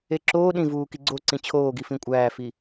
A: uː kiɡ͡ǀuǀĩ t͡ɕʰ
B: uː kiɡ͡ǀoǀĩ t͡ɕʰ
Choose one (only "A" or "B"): B